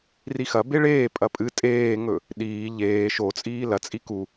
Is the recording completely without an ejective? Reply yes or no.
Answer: no